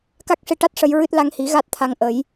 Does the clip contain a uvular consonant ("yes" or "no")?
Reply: no